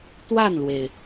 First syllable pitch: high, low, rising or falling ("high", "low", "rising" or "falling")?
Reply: falling